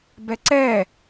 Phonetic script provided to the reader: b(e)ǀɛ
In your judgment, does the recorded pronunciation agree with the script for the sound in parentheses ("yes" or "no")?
no